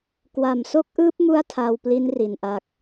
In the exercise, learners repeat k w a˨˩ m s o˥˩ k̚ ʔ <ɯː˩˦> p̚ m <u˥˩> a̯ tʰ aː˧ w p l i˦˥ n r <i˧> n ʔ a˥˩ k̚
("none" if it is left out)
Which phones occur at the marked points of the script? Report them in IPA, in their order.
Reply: ɯː˦˥, u˥˩, i˧

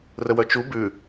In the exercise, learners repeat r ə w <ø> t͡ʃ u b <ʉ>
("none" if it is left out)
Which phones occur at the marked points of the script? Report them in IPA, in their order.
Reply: œ, ʉ

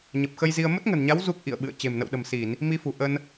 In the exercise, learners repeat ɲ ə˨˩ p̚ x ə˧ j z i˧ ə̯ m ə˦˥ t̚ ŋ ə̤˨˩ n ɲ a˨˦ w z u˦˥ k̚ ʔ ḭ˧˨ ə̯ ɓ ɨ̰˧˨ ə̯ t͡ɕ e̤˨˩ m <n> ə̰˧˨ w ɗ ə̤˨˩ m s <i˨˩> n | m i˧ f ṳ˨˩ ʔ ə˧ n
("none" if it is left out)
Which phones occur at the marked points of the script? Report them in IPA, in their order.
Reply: n, i˧˩˨

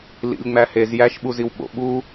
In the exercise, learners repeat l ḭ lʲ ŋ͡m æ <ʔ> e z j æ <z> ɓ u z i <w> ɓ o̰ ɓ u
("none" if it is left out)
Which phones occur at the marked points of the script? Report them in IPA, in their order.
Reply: h, ʃ, w

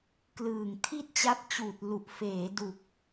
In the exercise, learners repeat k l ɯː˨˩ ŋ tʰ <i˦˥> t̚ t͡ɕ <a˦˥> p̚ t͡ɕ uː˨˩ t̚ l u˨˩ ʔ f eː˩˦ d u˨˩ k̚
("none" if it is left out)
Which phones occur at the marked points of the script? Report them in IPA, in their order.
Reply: i˥˩, a˦˥

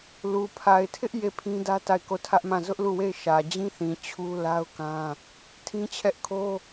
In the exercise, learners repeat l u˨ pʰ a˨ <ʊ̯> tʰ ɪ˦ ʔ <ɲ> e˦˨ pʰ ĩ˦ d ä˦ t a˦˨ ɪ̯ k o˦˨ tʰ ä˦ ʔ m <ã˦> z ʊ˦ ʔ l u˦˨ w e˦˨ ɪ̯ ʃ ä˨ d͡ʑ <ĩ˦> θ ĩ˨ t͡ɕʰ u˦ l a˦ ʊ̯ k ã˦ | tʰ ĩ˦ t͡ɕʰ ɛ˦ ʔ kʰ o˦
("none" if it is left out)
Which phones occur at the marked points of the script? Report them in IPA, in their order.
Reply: ɪ̯, j, ã˦˨, ĩ˦

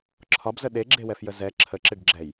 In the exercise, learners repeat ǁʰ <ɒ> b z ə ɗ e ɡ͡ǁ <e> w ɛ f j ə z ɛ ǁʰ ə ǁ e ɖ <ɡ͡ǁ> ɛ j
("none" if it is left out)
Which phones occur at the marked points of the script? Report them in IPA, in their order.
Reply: ɒ, e, ɡ͡ǁ

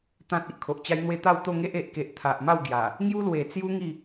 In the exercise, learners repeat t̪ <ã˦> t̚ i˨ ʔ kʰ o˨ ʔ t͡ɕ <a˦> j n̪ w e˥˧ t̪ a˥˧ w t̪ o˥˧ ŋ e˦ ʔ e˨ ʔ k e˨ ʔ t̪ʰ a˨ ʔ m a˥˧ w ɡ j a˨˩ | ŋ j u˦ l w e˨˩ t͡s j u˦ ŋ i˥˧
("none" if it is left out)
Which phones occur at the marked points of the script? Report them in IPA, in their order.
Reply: ã˦, a˦

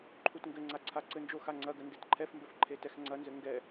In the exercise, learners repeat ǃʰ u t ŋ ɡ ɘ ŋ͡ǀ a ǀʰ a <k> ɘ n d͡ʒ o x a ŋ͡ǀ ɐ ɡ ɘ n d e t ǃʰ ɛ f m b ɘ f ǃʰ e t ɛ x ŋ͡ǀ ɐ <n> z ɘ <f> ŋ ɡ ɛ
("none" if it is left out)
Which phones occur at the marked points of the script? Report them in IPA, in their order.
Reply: ǀ, n, none

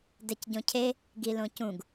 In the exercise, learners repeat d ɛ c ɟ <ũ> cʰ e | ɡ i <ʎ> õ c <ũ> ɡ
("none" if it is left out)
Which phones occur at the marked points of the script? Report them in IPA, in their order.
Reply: õ, l, ũ

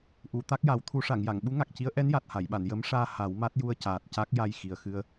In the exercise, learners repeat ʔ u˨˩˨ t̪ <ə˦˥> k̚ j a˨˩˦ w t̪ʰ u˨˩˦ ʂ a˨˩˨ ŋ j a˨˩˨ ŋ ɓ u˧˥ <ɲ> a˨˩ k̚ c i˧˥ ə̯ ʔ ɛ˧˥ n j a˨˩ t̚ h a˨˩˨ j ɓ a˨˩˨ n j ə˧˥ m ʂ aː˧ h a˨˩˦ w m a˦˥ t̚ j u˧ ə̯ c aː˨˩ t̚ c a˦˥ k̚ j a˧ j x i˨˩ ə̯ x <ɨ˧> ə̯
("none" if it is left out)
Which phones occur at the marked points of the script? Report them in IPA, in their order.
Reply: a˦˥, ŋ, ɨ˧

